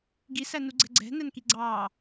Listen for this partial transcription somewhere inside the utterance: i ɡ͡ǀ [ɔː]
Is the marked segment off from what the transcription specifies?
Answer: yes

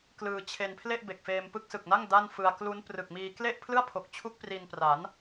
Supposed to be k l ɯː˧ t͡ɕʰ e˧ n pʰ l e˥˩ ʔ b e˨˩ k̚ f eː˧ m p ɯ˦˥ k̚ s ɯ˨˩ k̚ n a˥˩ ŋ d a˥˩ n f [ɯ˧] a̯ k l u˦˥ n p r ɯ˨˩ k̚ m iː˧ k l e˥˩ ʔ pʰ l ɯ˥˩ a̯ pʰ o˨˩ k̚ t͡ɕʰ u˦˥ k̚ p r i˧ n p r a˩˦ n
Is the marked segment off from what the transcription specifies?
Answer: no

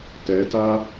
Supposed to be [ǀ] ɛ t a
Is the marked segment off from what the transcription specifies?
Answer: yes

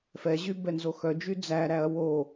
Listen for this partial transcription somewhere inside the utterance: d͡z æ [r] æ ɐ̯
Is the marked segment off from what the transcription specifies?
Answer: yes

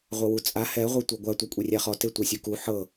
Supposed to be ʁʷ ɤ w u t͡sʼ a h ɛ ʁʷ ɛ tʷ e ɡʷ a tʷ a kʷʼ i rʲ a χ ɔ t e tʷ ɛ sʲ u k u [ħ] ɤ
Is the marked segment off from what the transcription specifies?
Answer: no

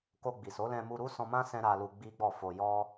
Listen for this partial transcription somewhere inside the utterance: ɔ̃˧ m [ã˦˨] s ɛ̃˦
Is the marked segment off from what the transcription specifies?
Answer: yes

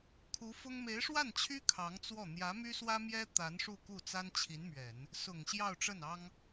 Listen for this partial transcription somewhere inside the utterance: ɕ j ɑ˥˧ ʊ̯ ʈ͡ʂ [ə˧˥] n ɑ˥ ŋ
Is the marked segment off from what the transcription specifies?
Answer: yes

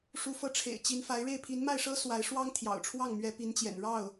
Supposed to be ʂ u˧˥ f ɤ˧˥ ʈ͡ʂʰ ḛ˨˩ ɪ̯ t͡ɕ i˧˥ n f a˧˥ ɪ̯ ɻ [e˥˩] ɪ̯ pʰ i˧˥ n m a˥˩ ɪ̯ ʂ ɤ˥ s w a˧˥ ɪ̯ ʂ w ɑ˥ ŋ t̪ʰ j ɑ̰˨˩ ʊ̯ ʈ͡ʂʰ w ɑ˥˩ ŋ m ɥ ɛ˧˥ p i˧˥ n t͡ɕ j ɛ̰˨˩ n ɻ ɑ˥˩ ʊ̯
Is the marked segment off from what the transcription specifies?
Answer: no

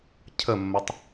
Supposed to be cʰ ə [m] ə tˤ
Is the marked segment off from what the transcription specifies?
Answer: yes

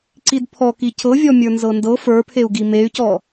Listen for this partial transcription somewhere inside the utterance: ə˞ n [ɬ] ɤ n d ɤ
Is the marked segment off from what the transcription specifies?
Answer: yes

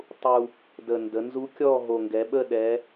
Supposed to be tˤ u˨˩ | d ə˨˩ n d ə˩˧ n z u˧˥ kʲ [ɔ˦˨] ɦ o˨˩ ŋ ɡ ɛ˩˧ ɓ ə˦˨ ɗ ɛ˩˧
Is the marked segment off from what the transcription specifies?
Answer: no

